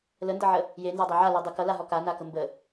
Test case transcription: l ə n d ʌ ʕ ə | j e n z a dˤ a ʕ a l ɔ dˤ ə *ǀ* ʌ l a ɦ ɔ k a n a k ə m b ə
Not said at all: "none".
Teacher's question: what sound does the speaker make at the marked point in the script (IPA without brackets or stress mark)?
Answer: k